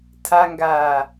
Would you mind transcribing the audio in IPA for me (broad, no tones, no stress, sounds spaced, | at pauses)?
tʰ a ŋ ɡ aː